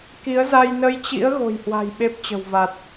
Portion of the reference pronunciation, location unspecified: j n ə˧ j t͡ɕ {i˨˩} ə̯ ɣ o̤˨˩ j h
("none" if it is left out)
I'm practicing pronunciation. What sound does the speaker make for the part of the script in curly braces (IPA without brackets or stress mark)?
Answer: ḭ˧˥